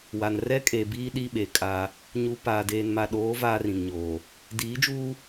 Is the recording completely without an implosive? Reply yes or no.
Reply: no